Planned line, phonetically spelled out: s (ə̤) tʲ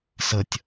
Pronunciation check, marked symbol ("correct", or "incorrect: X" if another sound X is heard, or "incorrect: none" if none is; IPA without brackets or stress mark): incorrect: ə